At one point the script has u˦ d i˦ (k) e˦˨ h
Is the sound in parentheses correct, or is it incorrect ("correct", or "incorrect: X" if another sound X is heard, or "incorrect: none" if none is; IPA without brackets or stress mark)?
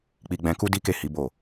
correct